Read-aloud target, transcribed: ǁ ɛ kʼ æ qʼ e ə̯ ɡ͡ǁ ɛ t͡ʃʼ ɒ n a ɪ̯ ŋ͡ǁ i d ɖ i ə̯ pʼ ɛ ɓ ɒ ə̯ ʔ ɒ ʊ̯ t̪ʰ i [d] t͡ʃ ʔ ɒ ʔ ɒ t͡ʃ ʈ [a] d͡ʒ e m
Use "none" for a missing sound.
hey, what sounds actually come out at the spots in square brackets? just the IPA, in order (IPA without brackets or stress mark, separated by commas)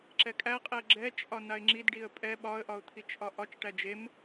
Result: none, æ